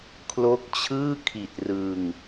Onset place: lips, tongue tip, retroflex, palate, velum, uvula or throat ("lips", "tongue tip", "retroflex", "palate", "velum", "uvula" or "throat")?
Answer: velum